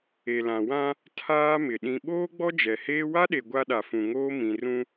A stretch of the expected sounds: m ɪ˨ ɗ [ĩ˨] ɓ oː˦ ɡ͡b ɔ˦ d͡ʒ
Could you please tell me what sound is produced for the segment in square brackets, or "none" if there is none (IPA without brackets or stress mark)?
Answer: ĩ˨